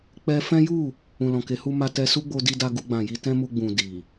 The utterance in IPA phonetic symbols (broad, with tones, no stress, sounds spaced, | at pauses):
k͡p ɛ˧ f ɛ̃˦ j u˦˨ | ũ˨ l ɔ̃˨ k e˨˦ h u˧ m a˧ t ɛ˧ s u˦ ɡ͡b o˧ d i˧ d a˧ ɡ u˧ ɡ͡b ã˨ j i˧ t ɛ̃˦ m u˧ ɡ͡b ũ˨ d i˨